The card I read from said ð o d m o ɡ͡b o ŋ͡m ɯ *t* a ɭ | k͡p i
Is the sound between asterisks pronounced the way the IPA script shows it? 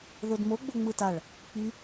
yes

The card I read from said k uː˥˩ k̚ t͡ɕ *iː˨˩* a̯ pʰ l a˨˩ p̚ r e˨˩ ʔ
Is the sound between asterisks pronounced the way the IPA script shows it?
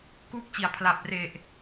no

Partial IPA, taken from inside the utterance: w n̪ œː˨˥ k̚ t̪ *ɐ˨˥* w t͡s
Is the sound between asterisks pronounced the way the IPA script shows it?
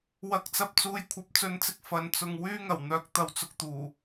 no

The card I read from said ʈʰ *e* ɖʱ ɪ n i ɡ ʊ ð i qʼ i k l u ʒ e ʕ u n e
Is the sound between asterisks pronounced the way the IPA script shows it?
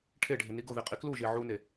yes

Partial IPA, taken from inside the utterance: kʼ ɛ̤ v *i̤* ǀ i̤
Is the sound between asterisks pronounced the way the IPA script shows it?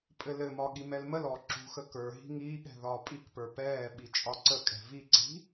no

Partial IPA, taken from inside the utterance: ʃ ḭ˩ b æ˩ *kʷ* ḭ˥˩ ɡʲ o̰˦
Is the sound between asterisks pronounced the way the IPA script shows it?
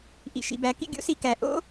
no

